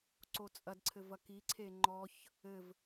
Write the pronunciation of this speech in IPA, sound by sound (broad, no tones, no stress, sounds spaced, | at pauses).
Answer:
ǀ o t͡sʼ ɐ d ǀʰ ɘ v ɐ k i ǀʰ e ŋ͡ǃ ɔ ç | ɘ v